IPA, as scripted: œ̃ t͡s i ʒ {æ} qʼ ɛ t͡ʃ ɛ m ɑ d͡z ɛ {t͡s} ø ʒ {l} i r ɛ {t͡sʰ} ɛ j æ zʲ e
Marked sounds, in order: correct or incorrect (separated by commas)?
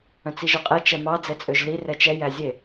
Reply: incorrect, incorrect, correct, incorrect